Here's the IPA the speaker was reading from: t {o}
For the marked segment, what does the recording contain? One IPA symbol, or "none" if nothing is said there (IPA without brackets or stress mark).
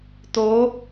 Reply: o